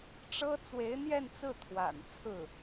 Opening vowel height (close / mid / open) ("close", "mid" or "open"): mid